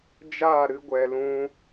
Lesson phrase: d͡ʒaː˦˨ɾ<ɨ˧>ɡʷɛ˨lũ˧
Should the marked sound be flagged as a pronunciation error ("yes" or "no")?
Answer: no